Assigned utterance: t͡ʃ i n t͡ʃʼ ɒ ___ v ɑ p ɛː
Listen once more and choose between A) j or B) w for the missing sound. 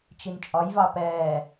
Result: A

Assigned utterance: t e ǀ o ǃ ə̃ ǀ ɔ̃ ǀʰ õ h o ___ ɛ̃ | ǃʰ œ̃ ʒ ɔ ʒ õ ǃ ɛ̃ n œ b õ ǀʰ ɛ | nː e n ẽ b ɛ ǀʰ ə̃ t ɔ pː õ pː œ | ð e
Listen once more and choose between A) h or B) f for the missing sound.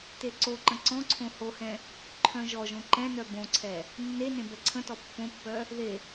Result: A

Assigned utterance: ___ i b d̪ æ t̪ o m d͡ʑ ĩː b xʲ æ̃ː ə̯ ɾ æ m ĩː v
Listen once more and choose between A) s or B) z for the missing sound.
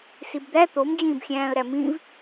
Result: A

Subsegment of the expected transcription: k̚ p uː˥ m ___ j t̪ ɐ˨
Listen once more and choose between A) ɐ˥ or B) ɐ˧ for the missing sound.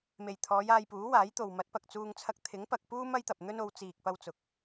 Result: A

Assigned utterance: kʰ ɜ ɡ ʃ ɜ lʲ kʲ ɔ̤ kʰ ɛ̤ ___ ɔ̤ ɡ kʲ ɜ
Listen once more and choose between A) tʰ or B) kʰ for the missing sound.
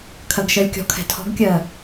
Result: A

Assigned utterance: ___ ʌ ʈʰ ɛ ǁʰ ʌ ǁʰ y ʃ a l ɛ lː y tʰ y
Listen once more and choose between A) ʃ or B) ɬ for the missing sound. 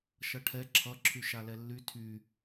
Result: A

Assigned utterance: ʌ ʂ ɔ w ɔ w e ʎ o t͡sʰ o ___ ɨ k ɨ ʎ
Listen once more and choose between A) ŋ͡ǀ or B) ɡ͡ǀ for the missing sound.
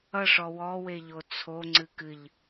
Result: A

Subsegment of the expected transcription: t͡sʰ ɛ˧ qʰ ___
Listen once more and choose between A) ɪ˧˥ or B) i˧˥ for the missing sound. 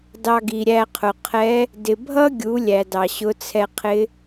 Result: A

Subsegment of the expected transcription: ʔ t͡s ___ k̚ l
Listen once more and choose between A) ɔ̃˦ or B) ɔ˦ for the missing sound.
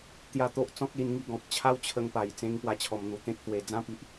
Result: A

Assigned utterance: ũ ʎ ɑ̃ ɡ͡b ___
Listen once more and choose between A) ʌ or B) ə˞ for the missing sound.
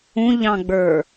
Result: B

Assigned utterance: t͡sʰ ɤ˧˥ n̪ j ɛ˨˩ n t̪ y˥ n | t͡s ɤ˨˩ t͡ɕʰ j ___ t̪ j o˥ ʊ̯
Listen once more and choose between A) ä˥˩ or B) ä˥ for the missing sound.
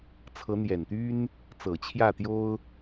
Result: A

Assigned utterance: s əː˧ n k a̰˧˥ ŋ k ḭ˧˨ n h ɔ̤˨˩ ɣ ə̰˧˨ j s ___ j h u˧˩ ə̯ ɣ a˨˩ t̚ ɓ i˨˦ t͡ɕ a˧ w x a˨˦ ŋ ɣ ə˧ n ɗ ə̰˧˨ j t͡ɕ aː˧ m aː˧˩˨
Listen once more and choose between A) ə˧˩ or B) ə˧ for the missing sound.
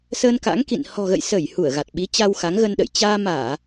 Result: A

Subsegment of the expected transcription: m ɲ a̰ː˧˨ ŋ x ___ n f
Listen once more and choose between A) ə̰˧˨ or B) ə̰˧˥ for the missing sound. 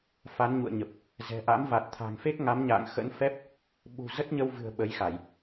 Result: B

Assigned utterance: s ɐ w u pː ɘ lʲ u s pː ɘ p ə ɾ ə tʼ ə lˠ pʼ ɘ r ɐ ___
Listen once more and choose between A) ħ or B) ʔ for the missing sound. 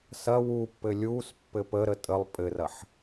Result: A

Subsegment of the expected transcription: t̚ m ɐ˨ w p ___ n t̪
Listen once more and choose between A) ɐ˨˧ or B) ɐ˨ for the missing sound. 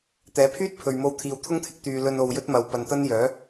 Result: B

